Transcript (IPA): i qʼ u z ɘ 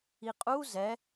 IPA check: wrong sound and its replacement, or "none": ɘ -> ɛ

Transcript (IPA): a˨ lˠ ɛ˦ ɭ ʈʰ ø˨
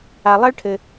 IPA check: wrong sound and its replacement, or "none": ø˨ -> ɘ˨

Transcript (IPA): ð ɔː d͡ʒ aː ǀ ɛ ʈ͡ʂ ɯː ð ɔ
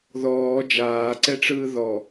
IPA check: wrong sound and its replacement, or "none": none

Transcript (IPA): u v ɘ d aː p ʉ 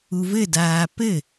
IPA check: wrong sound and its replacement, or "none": ʉ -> ɘ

